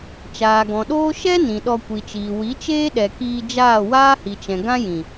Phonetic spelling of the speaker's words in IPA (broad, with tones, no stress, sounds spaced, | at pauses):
t͡ʃ aː˨ ɡ ɔ̃˨ ɗ oː˦ ʃ ɛ˦ n ĩ˨ ɗ ɔ˧ kʷ i˨ t͡ʃ iː˨ w i˨˦ t͡ʃ eː˦ ɗ ɛ˨ k iː˧ d͡ʒ aː˦˨ w aː˦ h i˨ t͡ʃ ɛ̃˨ ɡ ã˦ j ĩ˨